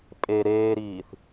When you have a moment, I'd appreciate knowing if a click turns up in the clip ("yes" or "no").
no